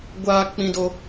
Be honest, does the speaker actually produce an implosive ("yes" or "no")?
no